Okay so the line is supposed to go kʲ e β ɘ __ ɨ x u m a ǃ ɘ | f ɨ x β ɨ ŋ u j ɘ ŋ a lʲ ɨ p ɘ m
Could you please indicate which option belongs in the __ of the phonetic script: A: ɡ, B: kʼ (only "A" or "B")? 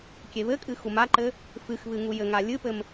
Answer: B